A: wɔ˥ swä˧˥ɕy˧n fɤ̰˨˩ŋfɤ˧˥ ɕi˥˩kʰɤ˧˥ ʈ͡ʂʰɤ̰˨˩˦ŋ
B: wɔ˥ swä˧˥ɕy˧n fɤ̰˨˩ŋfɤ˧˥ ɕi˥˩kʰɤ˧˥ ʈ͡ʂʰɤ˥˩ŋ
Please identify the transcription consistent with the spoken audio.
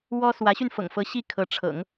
A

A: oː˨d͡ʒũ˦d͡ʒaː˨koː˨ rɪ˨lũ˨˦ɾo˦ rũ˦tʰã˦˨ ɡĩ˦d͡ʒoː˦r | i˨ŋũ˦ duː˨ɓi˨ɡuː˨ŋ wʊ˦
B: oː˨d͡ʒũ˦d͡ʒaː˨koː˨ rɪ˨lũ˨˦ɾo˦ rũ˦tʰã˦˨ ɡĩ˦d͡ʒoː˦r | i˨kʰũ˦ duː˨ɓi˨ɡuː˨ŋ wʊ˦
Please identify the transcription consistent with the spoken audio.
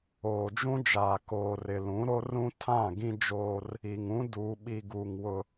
A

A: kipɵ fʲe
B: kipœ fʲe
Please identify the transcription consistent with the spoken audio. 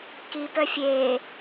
B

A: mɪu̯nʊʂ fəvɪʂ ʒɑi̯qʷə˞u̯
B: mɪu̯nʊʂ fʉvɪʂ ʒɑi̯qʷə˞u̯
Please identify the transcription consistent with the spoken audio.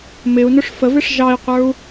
A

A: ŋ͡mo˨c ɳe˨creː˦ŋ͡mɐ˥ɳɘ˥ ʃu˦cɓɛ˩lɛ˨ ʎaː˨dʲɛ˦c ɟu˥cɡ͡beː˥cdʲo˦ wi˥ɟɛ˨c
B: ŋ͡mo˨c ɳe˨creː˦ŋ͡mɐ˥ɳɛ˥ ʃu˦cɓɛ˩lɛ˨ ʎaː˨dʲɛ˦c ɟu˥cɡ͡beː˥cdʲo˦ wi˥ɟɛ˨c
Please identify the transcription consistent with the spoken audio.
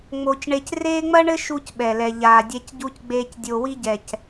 A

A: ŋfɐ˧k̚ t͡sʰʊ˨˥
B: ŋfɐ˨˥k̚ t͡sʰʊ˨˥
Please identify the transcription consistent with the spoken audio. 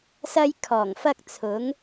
A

